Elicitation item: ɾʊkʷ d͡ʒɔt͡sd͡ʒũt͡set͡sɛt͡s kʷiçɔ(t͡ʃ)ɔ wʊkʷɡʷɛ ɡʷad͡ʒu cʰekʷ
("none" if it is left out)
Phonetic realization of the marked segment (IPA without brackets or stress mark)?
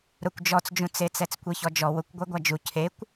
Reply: d͡ʒ